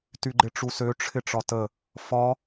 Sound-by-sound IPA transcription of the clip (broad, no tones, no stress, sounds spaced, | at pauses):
t y ɡ͡ǃ ɪ ʈ͡ʂ u s ø ʈ͡ʂʰ ɪ ʈ͡ʂ ɒ t ə | f ɒ